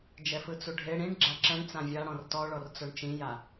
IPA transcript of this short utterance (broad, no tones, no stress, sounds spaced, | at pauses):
d͡ʒ ɛ f ɯ t͡s u ɖʱ e ɽ ĩ ɳ ɡ͡ǁ a ǁ ɛ̃ ɳ t͡s ã vʲ a ɽ ɔ̃ r t ɔ ɭ ɔ r t͡s o ɳ t͡ʃ ĩ j a